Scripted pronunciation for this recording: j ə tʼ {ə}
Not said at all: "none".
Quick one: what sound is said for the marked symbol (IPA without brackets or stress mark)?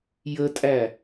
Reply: æ